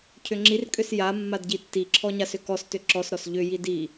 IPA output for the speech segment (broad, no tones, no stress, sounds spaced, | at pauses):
cʰ ʏ ŋ͡ǁ i r kʼ ʏ s j a mː a d ɟ i tː i ǁʰ ɔ ɲ a s ʏ k ɔ s t ʏ ǁ ɔ s ɾ ɔ s ʎ ʏ j i d i